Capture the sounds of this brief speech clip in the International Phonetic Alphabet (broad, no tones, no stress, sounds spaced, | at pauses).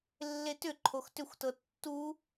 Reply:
lː e t ʏ ǃʰ o x t ʏ xʷ t ɤ tː u